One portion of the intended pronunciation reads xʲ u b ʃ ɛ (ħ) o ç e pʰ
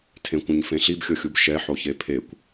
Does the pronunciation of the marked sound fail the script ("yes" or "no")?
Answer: no